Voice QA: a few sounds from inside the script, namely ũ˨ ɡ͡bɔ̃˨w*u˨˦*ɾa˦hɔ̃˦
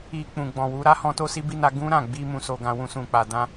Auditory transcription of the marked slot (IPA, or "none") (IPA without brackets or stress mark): u˨˦